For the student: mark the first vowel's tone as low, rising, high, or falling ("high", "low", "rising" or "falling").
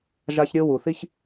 high